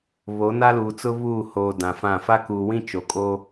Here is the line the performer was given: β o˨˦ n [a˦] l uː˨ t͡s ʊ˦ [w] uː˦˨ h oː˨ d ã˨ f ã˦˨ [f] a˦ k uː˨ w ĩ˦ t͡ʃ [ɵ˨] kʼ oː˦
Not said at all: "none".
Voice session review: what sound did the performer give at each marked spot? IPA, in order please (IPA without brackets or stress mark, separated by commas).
a˦, β, f, o˨